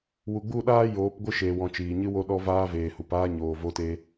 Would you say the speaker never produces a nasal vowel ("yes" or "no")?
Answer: no